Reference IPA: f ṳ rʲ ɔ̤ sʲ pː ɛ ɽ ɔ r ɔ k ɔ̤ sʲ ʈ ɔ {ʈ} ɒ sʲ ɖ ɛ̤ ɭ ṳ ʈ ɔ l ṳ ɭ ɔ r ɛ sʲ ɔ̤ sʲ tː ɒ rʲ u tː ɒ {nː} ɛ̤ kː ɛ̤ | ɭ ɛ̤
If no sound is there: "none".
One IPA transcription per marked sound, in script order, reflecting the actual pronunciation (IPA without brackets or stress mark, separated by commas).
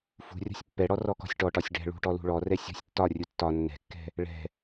ʈ, nː